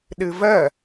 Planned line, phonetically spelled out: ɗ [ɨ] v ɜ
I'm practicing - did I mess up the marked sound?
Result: no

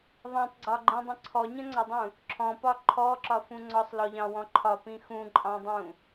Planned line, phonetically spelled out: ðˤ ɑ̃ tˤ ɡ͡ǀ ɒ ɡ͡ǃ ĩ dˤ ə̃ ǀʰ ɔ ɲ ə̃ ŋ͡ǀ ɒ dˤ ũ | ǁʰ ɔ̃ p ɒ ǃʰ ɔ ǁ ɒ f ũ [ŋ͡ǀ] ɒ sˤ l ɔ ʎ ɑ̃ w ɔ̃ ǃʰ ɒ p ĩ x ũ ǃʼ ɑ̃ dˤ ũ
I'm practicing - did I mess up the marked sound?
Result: no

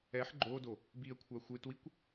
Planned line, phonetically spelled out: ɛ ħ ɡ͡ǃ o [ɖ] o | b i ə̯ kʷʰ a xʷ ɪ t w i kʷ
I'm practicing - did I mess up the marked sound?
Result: yes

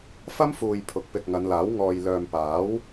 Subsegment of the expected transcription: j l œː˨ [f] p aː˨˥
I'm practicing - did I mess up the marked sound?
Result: yes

